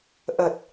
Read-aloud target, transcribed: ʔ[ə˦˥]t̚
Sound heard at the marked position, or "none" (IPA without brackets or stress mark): ə˨˩